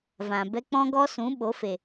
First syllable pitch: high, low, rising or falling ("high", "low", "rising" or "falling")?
low